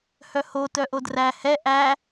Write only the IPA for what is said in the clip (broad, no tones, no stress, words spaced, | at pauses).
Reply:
hœho tœʔodræ hɛ ʔæ